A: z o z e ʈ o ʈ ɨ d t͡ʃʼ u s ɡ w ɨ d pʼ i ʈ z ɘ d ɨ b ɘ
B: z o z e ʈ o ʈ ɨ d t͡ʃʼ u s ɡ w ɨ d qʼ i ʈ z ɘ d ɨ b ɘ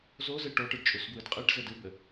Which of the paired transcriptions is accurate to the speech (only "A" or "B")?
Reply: B